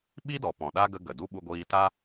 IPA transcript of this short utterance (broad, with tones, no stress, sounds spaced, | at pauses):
ɓ i˦ d ɔ˨ p ɔ̃˨ ɗ a˦ ɡ ə˦ ɡ ə˨ d u˦ ɓ u˧ ɡʷ iː˧ t a˦